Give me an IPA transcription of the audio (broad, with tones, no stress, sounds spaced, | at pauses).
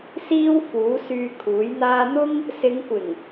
s iː˥ w f uː˨˥ s yː˧ kʰ uː˨˥ j n̪ aː˥ n̪ ʊ˥ ŋ | s ɪ˨˧ ŋ kʷ ɪ˨˩ ŋ